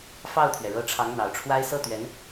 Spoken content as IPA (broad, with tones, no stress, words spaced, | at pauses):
fɑ˥˩ʊ̯t̪ʰɥɛ˩ɻɤ˧˥ ʈ͡ʂʰɑ˧˥ŋn̪ɑ˨˩ʊ̯ʈ͡ʂʰwa˥ɪ̯ sɤ˥˩t̪ɥɛ˧˥n